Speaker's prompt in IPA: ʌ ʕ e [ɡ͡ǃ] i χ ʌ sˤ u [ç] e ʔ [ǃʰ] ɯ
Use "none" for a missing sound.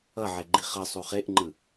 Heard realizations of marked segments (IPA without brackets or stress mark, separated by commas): ɡ͡ǃ, χ, ŋ͡ǃ